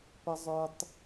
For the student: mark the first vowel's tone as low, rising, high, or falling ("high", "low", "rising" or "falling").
low